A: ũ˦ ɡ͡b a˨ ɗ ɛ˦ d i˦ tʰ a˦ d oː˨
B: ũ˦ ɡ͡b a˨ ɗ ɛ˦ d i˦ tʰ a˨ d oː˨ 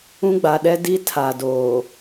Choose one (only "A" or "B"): B